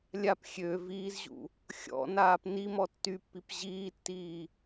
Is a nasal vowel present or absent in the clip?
absent